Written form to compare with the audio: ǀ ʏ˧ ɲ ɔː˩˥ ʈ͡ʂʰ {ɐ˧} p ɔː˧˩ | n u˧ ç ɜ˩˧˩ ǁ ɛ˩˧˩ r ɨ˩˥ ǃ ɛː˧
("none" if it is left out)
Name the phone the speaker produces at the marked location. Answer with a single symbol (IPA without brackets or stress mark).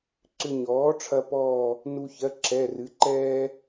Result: ɐ˧